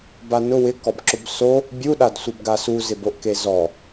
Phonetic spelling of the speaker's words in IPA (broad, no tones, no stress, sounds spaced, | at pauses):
b a n ʊ w ɪ k ɔ b ǁ ʊ b s o | bʲ u ɗ a d sʷ ɪ b ɡ a s u z ɪ b o ʔ k e z ɔ